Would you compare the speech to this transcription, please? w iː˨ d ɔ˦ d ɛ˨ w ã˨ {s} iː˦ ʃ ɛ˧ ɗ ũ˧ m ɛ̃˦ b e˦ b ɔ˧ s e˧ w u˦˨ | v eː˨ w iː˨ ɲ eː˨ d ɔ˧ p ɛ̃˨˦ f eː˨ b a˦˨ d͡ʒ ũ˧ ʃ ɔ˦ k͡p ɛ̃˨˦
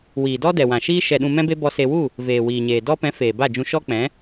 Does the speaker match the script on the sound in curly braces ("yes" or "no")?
no